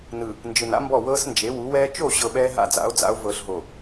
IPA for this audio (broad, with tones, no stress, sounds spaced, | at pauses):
n ɯ˨ | n d͡ʒ ɯ˨ n a̰˦ m b ɔ˦˨ w ɤː˦ s n d͡ʒ e˨˦ w u˨˦ w ɛː˦ t͡ʃ o˦˨ ɕ ɤ˨ ɓ ɛː˦ ɦ a̰˦˨ d͡z a̰˨˦ o̯ d͡z a̰˨˦ o̯ v ɤː˨ ɬ ɦ o˨